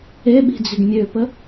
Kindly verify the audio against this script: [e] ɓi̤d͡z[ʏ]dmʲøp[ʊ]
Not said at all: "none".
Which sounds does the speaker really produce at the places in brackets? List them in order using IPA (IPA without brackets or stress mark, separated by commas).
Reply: e, ʏ, ə